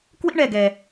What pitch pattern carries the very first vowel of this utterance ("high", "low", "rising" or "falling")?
high